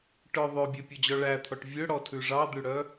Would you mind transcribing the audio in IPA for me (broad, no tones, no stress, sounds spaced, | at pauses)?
ʈ œ ðˤ ø bʲ ø pʲ ɔ d͡ʑ ɔ ɭ æ t̪ʰ ɔ ʈ vʲ ø ɽ ɔ tʰ ʉ ʐ ɑ d̪ ʉ ɽ œ